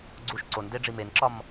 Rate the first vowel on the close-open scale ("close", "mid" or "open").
close